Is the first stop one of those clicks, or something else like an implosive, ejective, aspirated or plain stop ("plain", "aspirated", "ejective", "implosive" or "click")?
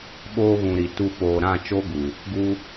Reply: implosive